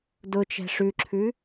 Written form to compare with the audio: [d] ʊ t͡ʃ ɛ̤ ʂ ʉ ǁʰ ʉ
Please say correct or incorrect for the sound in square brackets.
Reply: correct